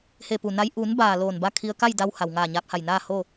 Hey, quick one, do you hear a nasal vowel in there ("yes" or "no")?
no